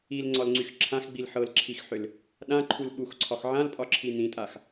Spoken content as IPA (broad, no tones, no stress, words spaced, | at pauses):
ilŋ͡ǀɒlŋ͡ǀyx ǁʰãxɡ͡bil ħɤlǁʰixħʏl | ɗãǃʰul ɓuxǀʰɒx ʕãlpʼɒǁʰi nĩtʼax